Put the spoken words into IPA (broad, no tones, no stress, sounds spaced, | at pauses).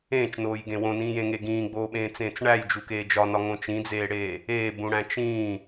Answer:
ẽː t͡ʃ n oː j ɡ ẽ w õ n ĩː j ẽ ŋ e ɡ ĩː ɡ͡b oː ɓ ẽː t͡s ẽː t͡s ɳ æ j d͡ʒ u k eː d͡ʒ ɒ n ɒ ŋ õ t͡ʃ ĩ d͡z eː ɽ eː | eː b ũ ɽ æ̃ t͡ʃ ĩː